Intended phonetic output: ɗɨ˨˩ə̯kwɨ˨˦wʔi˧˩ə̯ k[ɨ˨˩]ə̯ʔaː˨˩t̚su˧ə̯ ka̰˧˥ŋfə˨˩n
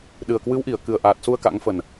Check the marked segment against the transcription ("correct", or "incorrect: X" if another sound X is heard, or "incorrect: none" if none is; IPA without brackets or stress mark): correct